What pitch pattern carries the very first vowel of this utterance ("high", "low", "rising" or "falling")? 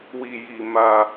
low